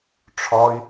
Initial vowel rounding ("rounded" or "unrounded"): rounded